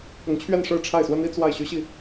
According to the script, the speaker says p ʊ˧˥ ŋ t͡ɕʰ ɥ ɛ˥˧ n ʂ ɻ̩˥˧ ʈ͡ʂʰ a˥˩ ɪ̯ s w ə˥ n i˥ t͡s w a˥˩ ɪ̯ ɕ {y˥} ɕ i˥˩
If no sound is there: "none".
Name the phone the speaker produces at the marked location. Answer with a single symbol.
y˥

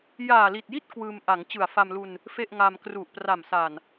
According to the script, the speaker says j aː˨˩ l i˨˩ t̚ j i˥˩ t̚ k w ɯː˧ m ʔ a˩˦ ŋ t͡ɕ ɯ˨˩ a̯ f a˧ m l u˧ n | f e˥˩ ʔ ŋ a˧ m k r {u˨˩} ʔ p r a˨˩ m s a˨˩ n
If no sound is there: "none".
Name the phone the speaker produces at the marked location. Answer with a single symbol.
u˨˩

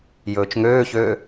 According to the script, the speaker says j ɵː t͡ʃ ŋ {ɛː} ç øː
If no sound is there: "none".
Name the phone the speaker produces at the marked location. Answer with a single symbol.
øː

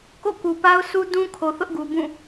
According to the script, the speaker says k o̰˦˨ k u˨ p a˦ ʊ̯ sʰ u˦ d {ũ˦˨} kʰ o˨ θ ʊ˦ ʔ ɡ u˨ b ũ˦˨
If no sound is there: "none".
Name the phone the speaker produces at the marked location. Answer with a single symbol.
ũ˦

